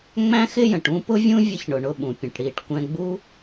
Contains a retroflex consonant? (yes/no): yes